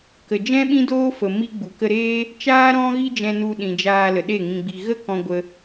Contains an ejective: no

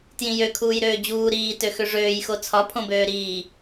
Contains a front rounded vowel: yes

